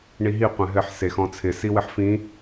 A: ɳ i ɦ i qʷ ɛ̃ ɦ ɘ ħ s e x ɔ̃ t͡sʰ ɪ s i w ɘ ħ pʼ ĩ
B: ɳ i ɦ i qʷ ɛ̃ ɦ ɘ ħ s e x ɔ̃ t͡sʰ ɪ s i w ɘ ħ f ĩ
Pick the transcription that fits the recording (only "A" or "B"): B